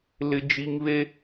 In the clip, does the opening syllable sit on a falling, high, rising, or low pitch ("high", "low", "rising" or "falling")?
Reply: high